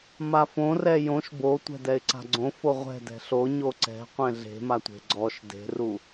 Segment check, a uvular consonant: present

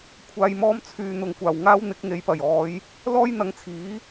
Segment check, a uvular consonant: absent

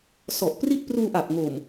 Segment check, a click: absent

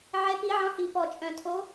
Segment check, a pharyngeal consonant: present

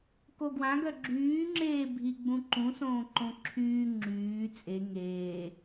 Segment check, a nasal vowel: present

